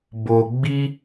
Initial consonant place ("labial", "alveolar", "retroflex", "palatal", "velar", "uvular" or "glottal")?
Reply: labial